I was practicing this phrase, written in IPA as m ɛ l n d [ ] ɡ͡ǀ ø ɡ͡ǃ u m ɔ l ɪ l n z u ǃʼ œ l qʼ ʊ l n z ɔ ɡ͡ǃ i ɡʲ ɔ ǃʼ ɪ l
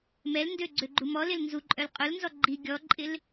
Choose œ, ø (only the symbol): ø